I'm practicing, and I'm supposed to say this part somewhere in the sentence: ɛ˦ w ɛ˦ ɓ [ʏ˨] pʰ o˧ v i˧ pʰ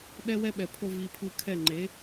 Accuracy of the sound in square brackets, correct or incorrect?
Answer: incorrect: ɛ˨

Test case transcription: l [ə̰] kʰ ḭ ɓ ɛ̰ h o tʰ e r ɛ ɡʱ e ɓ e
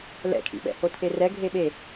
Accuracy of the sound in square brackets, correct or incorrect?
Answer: incorrect: ɛ̰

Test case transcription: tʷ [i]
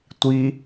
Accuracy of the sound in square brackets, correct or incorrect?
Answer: correct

